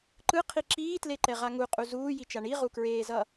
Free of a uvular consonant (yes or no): no